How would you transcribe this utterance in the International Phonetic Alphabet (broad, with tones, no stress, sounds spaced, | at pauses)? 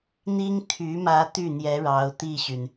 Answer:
n̪ i˥ ŋ t̪ʰ y˧˥ m ä˧˥ t̪ y˥˩ n̪ j ɛ˧˥ ɻ ɑ˧˥ ʊ̯ t̪ i˥˩ ɕ y˩ n